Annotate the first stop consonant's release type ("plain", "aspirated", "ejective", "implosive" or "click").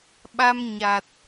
implosive